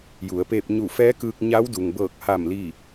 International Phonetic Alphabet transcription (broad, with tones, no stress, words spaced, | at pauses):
ju˩˧ə̯peː˧p̚ ɲu˧˩fɛː˧˥kɯː˧k̚ ɲa˧˥wdu˩ŋbɤː˧˩k̚ ha˧˩m li˥˨